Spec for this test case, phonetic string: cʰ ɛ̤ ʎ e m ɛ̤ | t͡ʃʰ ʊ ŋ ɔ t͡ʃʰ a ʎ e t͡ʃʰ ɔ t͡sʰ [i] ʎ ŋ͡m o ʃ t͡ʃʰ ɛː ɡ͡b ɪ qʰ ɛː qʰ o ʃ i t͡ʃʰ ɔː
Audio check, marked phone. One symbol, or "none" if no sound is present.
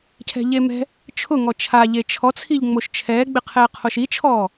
i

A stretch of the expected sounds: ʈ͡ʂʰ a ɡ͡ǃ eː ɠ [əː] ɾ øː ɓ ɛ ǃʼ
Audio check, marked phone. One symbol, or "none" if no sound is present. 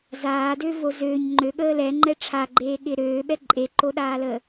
ɪː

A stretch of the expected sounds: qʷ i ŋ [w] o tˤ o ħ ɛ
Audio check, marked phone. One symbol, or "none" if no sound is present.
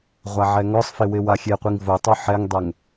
v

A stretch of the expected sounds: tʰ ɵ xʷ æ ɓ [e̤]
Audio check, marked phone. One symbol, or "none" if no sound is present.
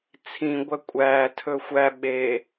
e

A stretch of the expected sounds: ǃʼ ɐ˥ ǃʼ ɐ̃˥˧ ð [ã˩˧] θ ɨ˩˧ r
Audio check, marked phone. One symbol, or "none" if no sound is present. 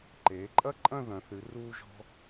ɐ̃˩˧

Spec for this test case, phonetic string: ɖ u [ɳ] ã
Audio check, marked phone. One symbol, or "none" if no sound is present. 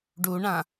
ɳ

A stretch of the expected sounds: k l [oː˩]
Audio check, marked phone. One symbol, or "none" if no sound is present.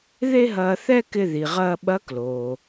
oː˩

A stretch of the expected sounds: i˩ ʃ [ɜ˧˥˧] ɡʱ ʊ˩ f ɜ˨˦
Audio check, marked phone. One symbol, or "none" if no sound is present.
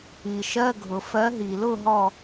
ɜ˧˥˧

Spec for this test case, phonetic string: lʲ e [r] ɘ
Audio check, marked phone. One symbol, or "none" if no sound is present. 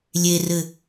r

